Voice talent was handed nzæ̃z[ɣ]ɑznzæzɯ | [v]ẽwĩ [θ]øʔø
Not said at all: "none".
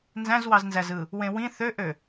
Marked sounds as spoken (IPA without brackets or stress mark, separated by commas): w, w, θ